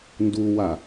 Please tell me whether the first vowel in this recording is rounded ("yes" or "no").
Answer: yes